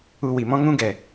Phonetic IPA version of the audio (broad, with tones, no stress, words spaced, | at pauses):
u˧wi˨mɔ̃˦ ŋũ˦ɡɛ˨